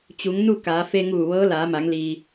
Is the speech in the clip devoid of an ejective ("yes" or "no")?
yes